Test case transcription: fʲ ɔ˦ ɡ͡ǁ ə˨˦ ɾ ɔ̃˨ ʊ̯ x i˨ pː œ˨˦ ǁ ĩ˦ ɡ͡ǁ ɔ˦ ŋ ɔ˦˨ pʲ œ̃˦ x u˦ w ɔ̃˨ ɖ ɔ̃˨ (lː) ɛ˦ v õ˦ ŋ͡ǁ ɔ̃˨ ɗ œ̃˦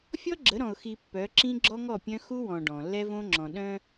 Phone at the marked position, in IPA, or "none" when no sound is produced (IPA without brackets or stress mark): lː